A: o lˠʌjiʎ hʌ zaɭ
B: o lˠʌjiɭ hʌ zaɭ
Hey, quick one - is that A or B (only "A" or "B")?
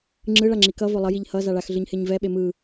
A